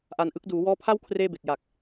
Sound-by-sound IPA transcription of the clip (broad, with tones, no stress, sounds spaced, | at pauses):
ʔ a˧ n ʔ ɯ˦˥ k̚ d uː˩˦ w ɔː˦˥ pʰ a˥˩ w kʰ r eː˥˩ b e˨˩ k̚ j aː˨˩ k̚